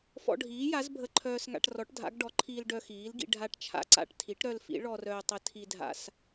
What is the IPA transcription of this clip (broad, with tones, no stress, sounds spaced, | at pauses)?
f ɔ̰˧ ɖʱ iː˩˥ j a˩˥ z bʱ ə˧ ǃʰ œː˧ s ŋ a̰˧ ʈ r ɔ˩˥ ʈ dʱ a̰˩˥ ɡ ɖ ɔ˩˥ ǃʰ iː˧ l ɖ œ˧ x iː˩˥ l ɡ ḭ˧ ɖʱ a˧ ʈ t͡ʃʰ a̰˧ ǀ a̰˧ ʈ tʰ i˩˥ ʈ ɾ œ˧ l f ḭ˩˥ ɭ ɔ˧ r œː˧ tˤ ə˩˥ tʰ i˧ dʱ a̰˧ s